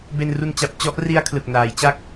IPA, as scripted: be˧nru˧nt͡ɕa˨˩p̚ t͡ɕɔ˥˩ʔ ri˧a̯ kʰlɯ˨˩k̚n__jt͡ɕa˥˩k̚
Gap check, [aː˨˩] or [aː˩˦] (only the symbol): aː˩˦